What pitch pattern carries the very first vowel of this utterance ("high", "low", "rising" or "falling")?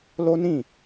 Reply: high